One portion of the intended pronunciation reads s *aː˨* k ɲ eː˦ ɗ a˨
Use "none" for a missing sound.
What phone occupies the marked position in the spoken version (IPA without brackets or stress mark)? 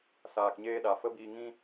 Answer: aː˨